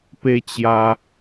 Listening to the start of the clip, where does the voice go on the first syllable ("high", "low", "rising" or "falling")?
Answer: high